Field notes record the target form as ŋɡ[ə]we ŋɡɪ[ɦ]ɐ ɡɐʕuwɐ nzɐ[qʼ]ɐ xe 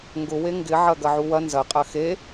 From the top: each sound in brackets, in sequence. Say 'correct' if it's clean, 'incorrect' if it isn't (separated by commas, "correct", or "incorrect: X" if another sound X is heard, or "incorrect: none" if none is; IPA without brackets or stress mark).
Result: incorrect: ʊ, incorrect: ʕ, correct